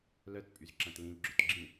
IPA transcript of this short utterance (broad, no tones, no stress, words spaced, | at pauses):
lœt pʼyzǁɐ̃tlĩlɡ͡ǁʏt ɡ͡ǁĩ